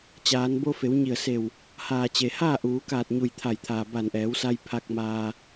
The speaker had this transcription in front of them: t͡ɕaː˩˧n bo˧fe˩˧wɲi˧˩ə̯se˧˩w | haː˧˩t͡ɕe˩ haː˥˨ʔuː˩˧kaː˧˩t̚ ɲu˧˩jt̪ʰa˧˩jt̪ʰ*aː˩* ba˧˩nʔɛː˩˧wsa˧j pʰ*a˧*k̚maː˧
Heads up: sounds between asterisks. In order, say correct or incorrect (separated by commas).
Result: correct, correct